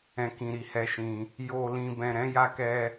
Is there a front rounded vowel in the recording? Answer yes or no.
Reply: no